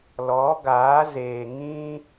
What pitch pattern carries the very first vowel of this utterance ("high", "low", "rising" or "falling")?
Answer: rising